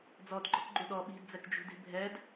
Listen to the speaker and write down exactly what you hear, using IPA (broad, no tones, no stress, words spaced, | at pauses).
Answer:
d͡zɔdɡ͡ǃɔkɡ͡ǃu ɗɔ ɓi̤dd͡zɛkd͡ʒṳdi̤ bʱɛd